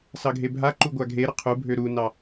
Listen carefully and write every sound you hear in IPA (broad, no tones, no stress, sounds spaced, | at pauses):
s ɑ ɡʱ e bʱ a ǃ u ɡʷ a ɡʱ e ɾ ə qʰ u bʱ ø ɾ u n ɑ